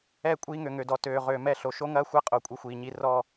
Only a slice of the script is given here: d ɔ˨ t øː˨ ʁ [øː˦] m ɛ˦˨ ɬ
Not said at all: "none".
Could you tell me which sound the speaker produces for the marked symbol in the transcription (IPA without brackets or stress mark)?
øː˨